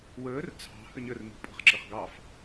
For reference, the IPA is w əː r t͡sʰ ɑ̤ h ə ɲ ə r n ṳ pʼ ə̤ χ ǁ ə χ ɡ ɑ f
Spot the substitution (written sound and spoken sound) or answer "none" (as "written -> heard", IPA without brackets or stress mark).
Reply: none